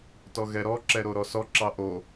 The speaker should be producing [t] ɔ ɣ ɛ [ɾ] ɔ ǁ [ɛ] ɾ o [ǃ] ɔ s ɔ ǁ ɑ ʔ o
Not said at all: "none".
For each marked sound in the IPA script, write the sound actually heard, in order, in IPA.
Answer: t, ɾ, ɛ, ɾ

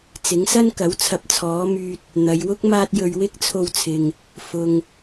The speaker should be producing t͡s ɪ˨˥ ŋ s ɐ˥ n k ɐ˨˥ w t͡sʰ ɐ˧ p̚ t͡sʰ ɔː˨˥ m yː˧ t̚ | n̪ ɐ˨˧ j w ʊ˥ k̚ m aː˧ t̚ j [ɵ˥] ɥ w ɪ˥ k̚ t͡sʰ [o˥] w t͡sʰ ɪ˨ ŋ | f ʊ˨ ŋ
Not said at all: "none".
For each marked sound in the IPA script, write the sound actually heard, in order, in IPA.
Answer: ɵ˨, o˧

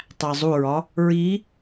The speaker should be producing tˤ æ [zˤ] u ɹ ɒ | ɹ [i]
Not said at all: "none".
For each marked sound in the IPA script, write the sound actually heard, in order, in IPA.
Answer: zˤ, i

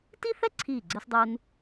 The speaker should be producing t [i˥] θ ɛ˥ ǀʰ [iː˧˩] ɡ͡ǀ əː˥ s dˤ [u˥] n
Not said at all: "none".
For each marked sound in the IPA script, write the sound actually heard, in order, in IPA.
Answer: i˥, iː˧˩, u˥

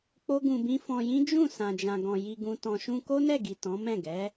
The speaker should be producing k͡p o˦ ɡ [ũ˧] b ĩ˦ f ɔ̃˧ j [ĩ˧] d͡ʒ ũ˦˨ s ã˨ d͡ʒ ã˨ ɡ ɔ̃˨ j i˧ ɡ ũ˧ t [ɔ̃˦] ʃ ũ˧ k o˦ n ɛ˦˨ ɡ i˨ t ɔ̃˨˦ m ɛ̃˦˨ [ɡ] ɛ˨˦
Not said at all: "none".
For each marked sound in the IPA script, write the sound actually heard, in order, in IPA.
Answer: ũ˧, ĩ˦, ɔ̃˧, ɡ

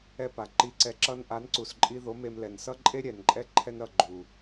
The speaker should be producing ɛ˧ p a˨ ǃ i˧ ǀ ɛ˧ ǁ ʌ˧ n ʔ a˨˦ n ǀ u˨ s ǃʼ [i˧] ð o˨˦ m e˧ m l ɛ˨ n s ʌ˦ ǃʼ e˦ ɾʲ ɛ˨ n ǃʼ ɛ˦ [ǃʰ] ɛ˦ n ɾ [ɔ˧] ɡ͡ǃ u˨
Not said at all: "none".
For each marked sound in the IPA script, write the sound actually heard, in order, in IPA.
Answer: i˧, ǃʰ, ʌ˧

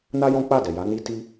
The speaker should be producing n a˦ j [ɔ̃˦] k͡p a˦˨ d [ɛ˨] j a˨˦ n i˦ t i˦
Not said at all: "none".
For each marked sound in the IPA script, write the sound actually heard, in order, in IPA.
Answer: ɔ̃˦, ɛ˨

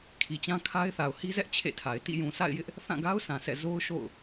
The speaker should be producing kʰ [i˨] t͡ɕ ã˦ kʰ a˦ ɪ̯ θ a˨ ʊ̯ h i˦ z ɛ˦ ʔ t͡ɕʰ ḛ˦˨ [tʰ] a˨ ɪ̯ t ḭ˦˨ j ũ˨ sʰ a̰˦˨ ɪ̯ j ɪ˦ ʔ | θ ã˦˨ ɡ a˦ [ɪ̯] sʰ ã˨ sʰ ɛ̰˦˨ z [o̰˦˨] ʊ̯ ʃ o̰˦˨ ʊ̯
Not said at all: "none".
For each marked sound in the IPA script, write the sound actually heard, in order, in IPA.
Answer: i˨, tʰ, ʊ̯, o˦

